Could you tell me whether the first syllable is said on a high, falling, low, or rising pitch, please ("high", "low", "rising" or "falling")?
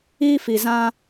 high